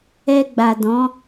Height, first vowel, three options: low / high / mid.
mid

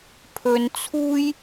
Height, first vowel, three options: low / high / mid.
mid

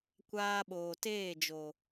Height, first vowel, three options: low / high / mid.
low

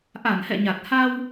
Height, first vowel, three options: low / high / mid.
low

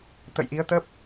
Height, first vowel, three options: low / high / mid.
mid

